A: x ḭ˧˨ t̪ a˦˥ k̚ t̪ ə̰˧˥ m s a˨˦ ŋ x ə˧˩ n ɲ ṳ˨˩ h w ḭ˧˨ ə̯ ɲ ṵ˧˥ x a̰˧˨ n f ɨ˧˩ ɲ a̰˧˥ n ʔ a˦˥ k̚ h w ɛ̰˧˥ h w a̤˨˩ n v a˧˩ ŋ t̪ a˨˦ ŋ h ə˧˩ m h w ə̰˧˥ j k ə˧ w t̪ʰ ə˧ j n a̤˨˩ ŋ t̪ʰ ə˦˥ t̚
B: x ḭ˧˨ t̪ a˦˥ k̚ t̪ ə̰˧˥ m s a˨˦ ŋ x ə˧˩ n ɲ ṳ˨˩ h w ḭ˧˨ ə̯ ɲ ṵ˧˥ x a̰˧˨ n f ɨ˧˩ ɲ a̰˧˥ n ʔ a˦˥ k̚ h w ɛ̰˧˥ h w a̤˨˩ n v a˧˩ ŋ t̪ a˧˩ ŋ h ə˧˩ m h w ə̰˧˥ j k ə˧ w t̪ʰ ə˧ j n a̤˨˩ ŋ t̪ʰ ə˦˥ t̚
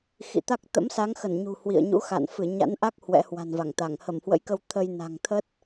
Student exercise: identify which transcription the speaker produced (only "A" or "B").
B